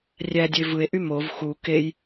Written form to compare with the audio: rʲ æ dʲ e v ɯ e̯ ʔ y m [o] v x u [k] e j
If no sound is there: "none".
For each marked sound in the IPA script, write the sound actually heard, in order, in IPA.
o, k

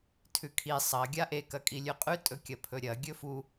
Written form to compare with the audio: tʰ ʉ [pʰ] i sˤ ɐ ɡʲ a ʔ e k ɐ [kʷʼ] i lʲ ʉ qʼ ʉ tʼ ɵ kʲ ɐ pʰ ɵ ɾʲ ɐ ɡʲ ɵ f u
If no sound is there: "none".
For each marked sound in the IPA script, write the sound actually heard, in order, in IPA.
kʰ, kʼ

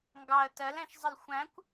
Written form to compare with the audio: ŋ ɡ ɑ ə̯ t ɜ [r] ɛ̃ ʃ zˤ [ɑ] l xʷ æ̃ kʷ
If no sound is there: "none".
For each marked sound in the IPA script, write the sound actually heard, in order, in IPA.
l, ə

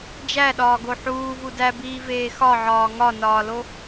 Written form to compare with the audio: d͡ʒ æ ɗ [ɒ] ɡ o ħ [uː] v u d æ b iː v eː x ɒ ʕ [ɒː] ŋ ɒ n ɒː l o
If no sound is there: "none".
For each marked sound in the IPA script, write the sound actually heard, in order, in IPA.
ɒː, uː, ɒː

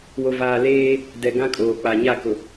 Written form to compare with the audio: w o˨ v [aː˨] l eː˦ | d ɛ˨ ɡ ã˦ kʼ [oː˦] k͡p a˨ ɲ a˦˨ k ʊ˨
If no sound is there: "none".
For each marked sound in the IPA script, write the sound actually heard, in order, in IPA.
aː˨, oː˨

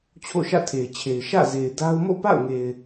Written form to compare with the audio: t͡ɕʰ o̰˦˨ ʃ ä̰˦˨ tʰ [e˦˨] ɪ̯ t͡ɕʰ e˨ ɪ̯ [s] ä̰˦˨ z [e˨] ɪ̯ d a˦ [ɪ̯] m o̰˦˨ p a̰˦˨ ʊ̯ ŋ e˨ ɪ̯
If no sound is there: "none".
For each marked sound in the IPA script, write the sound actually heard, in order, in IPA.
e˨, ʃ, e˨, ʊ̯

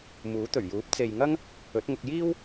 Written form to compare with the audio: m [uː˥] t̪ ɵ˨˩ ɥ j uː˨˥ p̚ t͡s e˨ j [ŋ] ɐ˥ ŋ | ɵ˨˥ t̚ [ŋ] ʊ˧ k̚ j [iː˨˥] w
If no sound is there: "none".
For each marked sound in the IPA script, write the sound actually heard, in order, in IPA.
uː˨˥, ŋ, ŋ, iː˥

